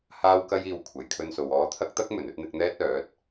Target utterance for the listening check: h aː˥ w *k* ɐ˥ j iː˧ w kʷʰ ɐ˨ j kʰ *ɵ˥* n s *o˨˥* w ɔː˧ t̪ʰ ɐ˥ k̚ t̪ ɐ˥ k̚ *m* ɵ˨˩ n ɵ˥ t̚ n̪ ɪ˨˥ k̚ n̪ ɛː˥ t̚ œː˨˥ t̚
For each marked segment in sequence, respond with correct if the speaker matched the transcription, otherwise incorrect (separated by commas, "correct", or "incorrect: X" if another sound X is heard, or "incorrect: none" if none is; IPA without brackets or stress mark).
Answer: correct, incorrect: ɵ˧, incorrect: o˨, correct